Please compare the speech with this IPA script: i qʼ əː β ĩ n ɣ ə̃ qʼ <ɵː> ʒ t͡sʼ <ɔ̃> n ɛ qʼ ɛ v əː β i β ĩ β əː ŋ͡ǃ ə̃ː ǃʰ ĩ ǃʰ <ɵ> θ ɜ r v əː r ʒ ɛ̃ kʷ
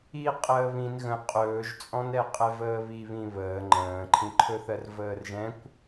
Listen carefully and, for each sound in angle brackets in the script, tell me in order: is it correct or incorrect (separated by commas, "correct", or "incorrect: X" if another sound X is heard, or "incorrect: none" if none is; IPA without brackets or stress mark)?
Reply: correct, correct, correct